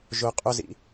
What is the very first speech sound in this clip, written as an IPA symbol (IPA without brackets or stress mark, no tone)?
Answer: ʒ